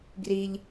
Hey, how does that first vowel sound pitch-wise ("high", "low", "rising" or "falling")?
low